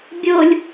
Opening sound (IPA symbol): bʲ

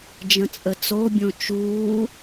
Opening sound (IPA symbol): d͡ʒ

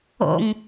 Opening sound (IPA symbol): o̰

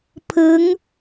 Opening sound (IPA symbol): pʰ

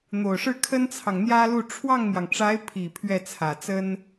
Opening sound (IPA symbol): n̪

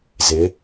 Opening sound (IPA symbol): z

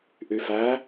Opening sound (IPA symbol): ʔ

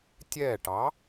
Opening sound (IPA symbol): tʲ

